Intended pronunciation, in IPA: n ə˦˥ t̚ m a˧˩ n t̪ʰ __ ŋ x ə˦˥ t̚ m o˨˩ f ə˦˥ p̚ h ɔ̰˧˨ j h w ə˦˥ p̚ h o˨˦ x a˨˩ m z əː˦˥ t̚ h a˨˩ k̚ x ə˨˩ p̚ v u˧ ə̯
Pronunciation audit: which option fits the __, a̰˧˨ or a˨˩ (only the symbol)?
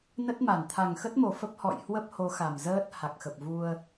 a˨˩